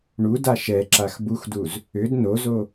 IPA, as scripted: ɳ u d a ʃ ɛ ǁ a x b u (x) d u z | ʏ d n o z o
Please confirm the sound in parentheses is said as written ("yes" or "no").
yes